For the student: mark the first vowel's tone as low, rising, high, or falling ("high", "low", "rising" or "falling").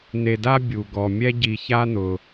low